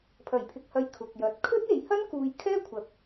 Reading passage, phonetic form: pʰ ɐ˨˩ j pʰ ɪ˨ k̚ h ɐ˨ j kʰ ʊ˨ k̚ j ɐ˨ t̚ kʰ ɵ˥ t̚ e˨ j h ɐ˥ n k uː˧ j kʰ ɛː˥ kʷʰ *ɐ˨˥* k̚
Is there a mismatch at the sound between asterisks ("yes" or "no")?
no